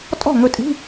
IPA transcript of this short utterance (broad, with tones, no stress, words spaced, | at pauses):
tʼɔ̤˥˩ŋɵ˧tʼi̤˧˥˧